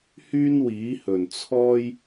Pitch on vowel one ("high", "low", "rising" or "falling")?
high